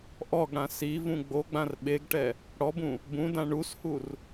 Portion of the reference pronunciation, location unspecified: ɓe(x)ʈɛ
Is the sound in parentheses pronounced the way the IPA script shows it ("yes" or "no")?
no